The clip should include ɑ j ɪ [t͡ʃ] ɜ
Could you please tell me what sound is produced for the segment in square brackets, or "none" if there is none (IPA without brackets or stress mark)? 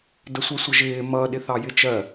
t͡ʃ